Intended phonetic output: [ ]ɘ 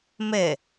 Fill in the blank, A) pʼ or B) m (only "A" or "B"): B